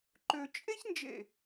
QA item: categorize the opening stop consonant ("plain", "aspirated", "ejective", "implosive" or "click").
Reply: click